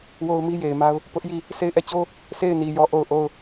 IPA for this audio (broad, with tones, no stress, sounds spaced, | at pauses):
w o˦ ʊ̯ m i˦ j e˨ ɪ̯ m a˦ ʊ̯ | p ʊ˦ ʔ j i˦˨ | sʰ e˦˨ ɪ̯ ʔ ɛ˦˨ t͡ɕ o˦ | sʰ e˦˨ ɪ̯ n i˨ j ɔ˦˨ ʔ o˦˨ ʊ̯ ʔ o˦˨ ʊ̯